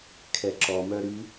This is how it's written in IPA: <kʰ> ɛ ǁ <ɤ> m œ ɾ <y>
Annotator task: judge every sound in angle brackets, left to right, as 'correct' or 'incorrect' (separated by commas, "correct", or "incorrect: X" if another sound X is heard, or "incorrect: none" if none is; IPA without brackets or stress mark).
correct, incorrect: ɔ, correct